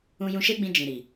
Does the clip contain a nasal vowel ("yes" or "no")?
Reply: yes